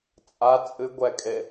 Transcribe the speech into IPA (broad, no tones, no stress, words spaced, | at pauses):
t͡sʼa t͡sʼɨ ɡʷɛkʼe